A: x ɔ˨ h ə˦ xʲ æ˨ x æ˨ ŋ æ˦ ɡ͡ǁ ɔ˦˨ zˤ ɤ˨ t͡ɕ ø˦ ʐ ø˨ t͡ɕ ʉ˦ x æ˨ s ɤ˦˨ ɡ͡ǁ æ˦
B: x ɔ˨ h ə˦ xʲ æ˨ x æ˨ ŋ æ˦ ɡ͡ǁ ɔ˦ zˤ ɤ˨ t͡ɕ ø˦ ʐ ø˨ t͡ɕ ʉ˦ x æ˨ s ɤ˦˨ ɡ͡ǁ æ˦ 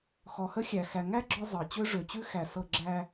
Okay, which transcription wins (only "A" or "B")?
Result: B